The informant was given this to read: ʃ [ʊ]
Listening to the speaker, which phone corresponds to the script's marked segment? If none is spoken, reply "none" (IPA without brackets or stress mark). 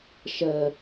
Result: ə